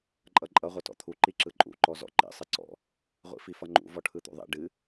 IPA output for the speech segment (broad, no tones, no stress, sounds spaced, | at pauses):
ǃʼ ʌ ǃʼ ʌ ʁʷ ʌ t ɔ̰ t̪ʰ u ǃ i ǁ ɯ ǃʼ ṵ ǃ ɔ z ɔ̰ ǃ ḭ sˤ ɨ ǀ ɔ̰ | ʁʷ ḭ f i f ʌ ŋ͡ǃ ṵ v ɔ ʈʰ ɯ t̪ ṵ ðˤ ḭ ɖ ɨ